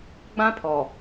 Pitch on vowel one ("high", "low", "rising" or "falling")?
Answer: high